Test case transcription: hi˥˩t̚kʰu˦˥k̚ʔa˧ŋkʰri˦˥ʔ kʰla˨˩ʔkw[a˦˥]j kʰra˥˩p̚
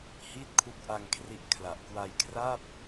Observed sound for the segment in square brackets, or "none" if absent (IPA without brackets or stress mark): a˧